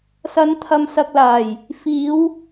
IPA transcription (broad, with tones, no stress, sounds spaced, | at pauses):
s ɐ˨˧ n t̪ʰ ɐ˨ m s ɐ˨ k̚ l aː˨˩ j | f iː˨˧ w